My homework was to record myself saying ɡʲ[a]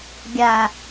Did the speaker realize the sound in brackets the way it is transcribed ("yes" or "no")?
yes